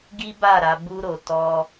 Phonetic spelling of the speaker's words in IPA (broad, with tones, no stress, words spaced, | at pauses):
ɡi˦ ba˦˨ ɾa˨˦bu˦ɾo˧ tɔ˧